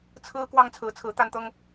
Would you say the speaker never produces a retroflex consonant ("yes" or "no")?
yes